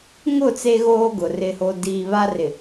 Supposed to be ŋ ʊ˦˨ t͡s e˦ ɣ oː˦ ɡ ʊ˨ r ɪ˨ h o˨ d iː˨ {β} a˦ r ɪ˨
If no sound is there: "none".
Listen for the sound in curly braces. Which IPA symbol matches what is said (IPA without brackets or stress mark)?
β